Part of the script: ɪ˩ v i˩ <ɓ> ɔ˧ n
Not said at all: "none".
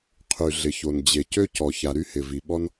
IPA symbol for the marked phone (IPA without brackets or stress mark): ɓ